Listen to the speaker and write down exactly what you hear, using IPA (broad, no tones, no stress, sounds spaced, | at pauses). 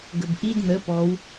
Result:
ɡ ə b ʔ i d n̪ ə p ɔ w